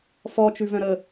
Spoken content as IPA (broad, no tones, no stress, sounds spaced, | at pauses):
f ɔ t͡ʃ ʉ v œ̃ ɾ ə